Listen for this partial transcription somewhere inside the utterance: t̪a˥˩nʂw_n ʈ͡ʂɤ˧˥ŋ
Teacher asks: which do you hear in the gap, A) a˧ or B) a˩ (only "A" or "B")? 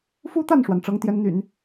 B